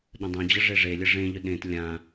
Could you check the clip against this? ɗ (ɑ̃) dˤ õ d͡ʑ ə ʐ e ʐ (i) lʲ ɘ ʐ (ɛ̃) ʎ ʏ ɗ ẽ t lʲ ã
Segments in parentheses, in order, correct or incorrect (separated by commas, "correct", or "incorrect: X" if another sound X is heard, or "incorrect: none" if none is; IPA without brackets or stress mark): incorrect: ə̃, incorrect: e, incorrect: ẽ